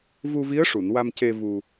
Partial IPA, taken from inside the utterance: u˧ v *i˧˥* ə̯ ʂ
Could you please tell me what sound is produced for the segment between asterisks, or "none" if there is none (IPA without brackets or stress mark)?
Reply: i˧˥